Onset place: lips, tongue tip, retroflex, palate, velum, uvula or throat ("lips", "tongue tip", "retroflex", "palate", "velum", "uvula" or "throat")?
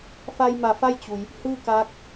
lips